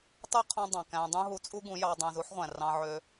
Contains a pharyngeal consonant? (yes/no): yes